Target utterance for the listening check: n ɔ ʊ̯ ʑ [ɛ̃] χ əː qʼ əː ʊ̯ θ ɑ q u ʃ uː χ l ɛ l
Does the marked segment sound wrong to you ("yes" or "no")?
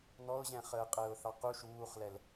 no